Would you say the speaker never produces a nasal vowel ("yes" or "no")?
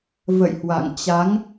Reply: yes